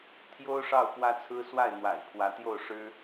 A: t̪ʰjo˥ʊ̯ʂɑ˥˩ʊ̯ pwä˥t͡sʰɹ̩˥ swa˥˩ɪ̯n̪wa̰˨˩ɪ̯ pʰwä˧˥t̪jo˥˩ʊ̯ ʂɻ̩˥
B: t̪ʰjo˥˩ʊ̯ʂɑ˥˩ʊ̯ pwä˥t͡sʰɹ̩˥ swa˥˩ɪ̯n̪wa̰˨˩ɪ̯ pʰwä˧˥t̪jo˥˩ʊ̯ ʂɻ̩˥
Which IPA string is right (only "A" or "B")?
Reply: A